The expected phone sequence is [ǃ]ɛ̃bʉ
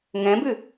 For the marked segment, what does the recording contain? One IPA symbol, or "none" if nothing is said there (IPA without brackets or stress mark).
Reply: ŋ